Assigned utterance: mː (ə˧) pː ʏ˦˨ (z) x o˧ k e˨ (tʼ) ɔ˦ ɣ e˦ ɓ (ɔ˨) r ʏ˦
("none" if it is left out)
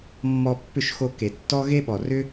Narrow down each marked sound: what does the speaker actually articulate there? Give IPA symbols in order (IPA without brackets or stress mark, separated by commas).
ɔ˧, ʃ, tː, ɔ˨